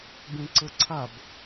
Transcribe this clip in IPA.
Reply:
b ẽ ǀ ə ǀʰ a b

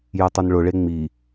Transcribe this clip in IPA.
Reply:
j ɛ tˤ o n ɭ ʊ ɭ e ŋ͡m i

